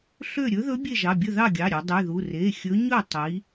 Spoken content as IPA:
ɬ ø˥˨ ɾʲ ɵ˧˥ ð ɵ˧˥ bʲ e˥˨ ʒ ɑ˩˧˩ bʲ ɵ˥˨ ð ɑ˥˨ ɡʲ ɑ˩˧˩ ɾʲ ø˩˧ dˤ y˩˧˩ ð u˩˧˩ r e˩˧˩ xʲ ɵ˧˥ ɲ ɵ˥˨ tˤ i˩˧

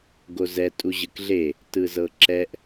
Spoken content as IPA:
ɡ o z ɛ tʼ u ʑ ɯ k ɮ e | t ɯ z ɤ ǁ ɛ ʔ

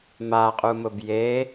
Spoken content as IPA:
m a qʼ u m ʊ b j e

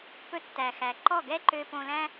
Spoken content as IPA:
p ɵ˧ tː æ˩ x æ˩ ǃ ɔ˥˩ ɡ ɛ˥ ǃ ø˧ p õ˧ l æ̃˥

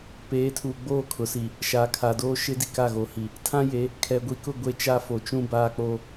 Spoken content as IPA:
p eː˨˦ tʰ uː˨ ɡ͡b oː˦˨ kʰ ʊ˨ s i˨ | ʃ a˨ kʰ a˨ d oː˦ ʃ ɪ˦ d i˨ k a˦˨ ɣ oː˨ h i˨ | tʰ ã˦ j e˨˦ | kʰ ɛ˨ ɡʷ i˨ k ʊ˦˨ ɡʷ e˦ t͡ʃ a˦ f o˨ t͡ʃ ũ˦ b aː˦ k͡p o˦

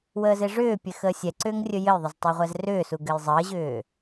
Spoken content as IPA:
w əː z e ʐ ʏː pʲ ɘ x əː sʲ ɛ ǀ ʏː ŋ rʲ ɵ j ɘ j ðˤ ʏ z tˤ ø ʁʷ ɛ z r ʏː s u ɡ ɘ j zˤ əː ʑ ʏː

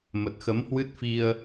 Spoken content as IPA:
m ə˨˩ t̚ x ə˨˦ m h w ɨ˦˥ t̚ f i˧ ə̯

